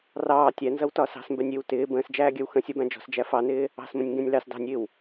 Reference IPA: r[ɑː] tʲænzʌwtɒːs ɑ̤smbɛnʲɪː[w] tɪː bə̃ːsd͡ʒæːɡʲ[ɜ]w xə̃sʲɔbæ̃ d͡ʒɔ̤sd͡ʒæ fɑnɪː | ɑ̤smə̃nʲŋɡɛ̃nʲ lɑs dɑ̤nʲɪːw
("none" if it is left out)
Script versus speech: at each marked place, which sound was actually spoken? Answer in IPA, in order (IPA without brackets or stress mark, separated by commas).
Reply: ɑː, w, ɜ